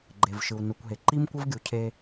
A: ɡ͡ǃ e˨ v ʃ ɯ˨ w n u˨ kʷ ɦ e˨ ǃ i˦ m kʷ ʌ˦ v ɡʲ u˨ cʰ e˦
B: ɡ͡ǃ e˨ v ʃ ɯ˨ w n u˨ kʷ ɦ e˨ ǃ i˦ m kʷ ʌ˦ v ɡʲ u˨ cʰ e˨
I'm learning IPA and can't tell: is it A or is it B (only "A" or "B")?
A